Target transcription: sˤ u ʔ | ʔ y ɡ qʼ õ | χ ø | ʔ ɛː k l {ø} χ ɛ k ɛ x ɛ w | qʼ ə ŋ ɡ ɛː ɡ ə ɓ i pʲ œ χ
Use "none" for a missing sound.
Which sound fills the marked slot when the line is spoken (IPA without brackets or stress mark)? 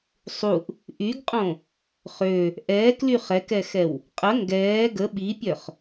y